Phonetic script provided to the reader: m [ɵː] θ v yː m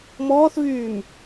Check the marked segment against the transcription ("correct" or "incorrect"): incorrect